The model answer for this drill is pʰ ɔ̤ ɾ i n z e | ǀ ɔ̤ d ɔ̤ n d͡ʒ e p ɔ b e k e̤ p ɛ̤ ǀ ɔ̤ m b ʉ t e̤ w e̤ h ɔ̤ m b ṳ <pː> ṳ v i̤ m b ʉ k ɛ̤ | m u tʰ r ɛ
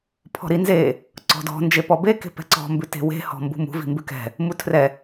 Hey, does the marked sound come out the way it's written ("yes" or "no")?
no